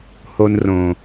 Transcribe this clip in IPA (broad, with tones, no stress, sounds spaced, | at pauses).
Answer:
h o˧ n r õ˨